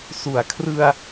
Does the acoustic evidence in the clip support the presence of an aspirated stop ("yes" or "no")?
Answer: yes